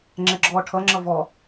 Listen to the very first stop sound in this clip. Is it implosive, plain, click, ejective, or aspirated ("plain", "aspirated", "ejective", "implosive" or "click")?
click